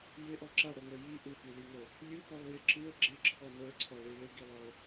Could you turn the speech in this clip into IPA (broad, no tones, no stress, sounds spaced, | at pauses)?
j ɪ ʔ ɔ ǁ a ɽ o ŋ ə˞ j i ʔ ɯ p i l i ŋ ə˞ | lʲ ɯ p ɔ lˠ j ɪ ǁ ɯ ə̯ ɡ͡ǁ ɪ ǁʰ ɔ n ə˞ ǀʰ ɔ ɭ i ɭ ɪ ɡ i lˠ ɔ ə̯